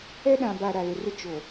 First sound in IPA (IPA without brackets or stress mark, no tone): ɛ